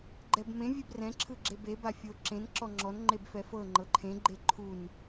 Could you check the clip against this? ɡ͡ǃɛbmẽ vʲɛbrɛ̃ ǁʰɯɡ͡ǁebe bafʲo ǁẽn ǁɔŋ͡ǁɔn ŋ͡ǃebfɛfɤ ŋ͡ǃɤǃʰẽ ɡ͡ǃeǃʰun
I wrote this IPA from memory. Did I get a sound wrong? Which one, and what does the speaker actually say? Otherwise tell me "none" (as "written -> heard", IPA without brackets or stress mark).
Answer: none